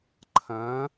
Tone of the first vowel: rising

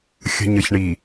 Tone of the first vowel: low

